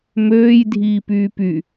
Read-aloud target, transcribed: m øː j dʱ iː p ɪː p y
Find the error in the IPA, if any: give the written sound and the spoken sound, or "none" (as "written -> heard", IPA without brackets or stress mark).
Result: ɪː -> yː